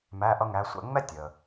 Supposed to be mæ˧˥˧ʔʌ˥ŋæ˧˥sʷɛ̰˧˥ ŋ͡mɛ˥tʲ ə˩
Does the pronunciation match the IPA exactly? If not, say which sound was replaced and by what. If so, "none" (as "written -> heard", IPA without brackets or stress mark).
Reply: none